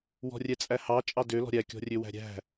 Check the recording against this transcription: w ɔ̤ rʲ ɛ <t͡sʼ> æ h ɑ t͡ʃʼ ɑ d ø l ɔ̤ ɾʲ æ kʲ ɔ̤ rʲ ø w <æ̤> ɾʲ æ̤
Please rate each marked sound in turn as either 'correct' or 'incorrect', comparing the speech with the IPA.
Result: correct, correct

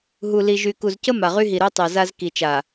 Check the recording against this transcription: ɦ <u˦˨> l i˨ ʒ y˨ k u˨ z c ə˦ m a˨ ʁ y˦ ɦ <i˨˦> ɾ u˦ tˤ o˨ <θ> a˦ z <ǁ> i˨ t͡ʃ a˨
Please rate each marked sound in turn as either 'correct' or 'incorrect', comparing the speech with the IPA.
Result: incorrect: u˨, incorrect: i˨, incorrect: z, incorrect: k

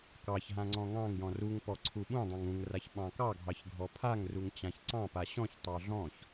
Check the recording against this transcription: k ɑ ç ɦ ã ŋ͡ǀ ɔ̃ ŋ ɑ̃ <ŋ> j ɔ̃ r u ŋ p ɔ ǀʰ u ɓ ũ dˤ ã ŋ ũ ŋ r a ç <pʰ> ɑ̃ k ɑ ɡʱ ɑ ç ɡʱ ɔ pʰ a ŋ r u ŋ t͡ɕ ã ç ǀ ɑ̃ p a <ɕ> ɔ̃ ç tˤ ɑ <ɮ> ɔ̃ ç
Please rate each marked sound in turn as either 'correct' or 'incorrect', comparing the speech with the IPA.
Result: correct, incorrect: ɓ, correct, correct

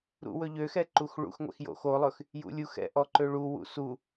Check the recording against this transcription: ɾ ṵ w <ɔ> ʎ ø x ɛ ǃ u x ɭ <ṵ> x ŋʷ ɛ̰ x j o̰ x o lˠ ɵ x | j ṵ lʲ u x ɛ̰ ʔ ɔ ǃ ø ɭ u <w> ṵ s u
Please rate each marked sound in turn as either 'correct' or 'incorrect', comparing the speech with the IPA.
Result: incorrect: ɵ, correct, correct

